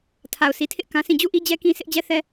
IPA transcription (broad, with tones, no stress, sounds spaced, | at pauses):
tʰ a˨ ʊ̯ s i˨ tʰ ɪ˦ ʔ k ã˦ sʰ ĩ˦˨ d͡ʑ u˦˨ ʔ i˦ d͡ʑ ɛ˦ k ĩ˦ s ɪ˦ ʔ d͡ʑ ɛ˦ θ ɛ˦